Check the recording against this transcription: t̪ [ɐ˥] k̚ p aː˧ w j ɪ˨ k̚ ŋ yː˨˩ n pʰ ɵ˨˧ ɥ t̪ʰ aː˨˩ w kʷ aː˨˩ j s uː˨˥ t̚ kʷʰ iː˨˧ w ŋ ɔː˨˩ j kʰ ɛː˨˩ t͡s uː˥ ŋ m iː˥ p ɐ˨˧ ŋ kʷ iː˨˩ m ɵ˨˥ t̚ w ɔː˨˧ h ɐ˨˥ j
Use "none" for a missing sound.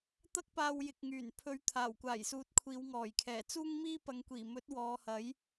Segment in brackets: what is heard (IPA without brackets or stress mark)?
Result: ɐ˥